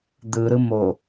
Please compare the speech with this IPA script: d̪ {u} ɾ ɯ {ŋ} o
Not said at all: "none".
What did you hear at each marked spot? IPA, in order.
ɯ, m

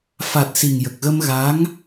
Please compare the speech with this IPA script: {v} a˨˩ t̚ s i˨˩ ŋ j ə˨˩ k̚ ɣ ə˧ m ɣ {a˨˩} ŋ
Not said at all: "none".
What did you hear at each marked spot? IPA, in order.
f, a˧˥

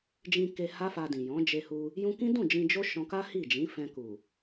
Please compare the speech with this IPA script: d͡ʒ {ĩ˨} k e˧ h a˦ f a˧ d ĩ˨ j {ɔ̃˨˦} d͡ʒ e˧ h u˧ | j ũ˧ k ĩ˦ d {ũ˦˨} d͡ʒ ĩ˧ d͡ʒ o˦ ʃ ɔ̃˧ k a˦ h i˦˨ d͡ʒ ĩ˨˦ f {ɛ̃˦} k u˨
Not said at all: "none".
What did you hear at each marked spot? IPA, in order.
ĩ˧, ɔ̃˨˦, ũ˦˨, ɛ̃˧

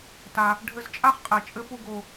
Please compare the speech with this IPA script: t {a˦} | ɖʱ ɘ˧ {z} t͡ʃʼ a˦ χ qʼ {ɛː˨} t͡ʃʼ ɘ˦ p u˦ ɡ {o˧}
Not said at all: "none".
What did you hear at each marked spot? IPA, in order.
a˧, z, ɛ˨, o˧

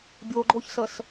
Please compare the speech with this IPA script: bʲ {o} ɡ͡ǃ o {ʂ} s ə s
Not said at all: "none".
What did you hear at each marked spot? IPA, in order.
o, ç

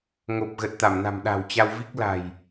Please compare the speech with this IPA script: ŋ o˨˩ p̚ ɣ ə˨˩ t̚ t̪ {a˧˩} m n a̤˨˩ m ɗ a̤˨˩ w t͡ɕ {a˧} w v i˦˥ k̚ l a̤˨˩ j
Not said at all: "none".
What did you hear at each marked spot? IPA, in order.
a˧˩, a˧

